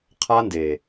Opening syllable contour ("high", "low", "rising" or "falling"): high